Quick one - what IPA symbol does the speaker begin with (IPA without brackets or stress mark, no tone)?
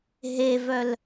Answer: ɦ